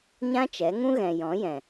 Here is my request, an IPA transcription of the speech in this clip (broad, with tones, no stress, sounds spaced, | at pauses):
ɲ ã˦ t͡ʃ ɛ˨˦ ŋ ũ˦ ɣ ɛ̃˨ j ɔ̃˨˦ j ɛ̃˨